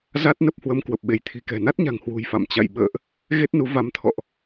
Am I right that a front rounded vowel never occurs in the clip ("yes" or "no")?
yes